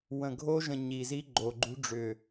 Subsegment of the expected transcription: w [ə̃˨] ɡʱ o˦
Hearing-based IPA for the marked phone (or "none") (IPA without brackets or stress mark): ə̃˨